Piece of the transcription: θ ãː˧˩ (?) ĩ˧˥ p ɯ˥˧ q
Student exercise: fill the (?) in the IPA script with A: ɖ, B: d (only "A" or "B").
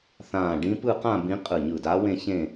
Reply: A